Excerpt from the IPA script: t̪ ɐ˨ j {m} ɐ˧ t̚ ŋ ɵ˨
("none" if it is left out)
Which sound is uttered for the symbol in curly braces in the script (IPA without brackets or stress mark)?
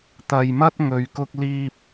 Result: m